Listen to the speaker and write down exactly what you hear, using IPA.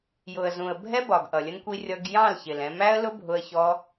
j ʊ˨ ə̯ z ũ˨ ə̯ bʱ ɛ˦ b ɒ˨ ɡ ʔ ʌ˨ lʲ ə˦ n kʷ i˦ rʲ ʌ˧ ɡ j ɑ̃˦˨ l ç ɪ˨ l ɛ̃˧ m æ˦ ə̯ l ʊ˦ bʱ ʊ˧ ə̯ ç ɔ˧

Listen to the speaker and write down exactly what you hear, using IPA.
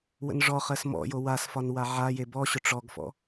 w ə̰ n ʐ ɔ χ ɜ s m ɔ̰ j o w a s f ɒ n w a ʕ a j e b ɔ ɕ ʊ ʈ͡ʂ ɔ ɡ f ɔ̰

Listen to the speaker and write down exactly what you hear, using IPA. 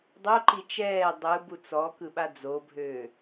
dˤ o ǃ i t͡ʃ ɛː dˤ ɯ b u t͡s ɔ k ɯ ɓ a d͡z o bʱ øː

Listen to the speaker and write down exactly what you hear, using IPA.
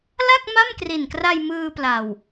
l a˥˩ k̚ m a˥˩ m k r i˨˩ n k r a˧ j m ɯː˧ p l a˨˩ w

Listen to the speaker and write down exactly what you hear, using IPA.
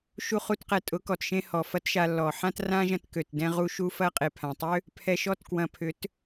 ʃ u˦ χ u˦ t q ɛ˧ tʼ ʊ˨˦ k ɔ˨ t ʃ ẽ˧ h ɔ˨ f ɐ˦ t ʃ a˧ lː ɔ˨ ħ ã˦ t r ã˦ ʒ ɐ̃˧ t k ø˨ t d ɛ̃˧ ʁ u˧ ʃ u˧ f ɐ˦ qʼ e˨ pʰ ã˨ tˤ ø˦ | pʰ ɛ˧ ʃ ɔ˦ t k w ɐ̃˨ pʰ ʏ˨˦ t

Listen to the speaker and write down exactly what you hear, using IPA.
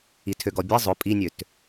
i tʰ ø ɡ ɔ bʲ ɛ zˤ ʊ pʼ i nʲ ø t

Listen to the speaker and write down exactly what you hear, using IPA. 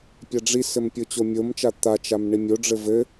pʲ a ɖ͡ʐ i s ɘ m pʲ o t͡ɕ o mʲ o m t͡ʃ a t̪ a t͡ʃ a m ɳ i mʲ o ɖ͡ʐ ɘ v ɘ

